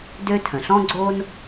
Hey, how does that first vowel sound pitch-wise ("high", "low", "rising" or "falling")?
high